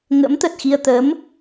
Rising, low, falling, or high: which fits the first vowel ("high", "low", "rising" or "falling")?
rising